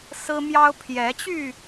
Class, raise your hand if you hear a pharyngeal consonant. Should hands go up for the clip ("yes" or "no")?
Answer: no